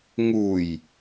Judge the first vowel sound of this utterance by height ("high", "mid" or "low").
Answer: high